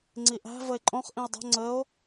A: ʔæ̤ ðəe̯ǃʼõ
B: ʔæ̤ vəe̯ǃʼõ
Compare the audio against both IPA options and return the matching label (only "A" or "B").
B